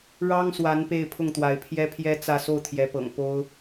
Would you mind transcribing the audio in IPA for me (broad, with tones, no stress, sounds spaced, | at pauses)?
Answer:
ɻ ɑ˥ ŋ s w a˧˥ n p e˥˧ ɪ̯ pʰ ʊ˥˩ ŋ t̪ w a˧˥ ɪ̯ pʰ j ɛ˥ pʰ j ɛ˥ t͡s ä˥˧ s o˥˩ ʊ̯ t̪ʰ j ɛ˧˥ p ɤ̰˨˩ ŋ p o˥ ʊ̯